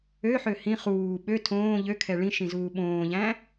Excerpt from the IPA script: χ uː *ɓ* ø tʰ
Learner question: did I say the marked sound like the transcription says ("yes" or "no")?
yes